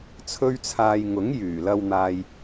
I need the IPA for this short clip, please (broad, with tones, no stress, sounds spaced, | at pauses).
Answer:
t͡sʰ ɵ˥ ɥ t͡sʰ aː˧ j ŋ ʊ˨˥ ŋ j yː˨˩ l ɐ˧ w n̪ aː˨ j